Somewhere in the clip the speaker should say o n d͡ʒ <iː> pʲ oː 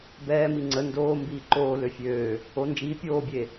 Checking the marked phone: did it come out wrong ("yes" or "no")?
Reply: no